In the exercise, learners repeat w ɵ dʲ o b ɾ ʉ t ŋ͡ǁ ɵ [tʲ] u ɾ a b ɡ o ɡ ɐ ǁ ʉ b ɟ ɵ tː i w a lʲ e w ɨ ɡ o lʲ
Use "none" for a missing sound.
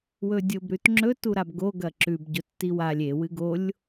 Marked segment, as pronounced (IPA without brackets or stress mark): t